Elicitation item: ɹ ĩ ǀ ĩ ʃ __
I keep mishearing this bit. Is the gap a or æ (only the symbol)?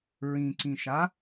a